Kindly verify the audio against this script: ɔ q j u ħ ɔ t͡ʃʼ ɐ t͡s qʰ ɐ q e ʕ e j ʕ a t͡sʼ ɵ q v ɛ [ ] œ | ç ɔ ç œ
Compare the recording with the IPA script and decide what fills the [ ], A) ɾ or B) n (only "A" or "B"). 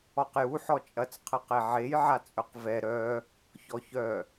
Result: A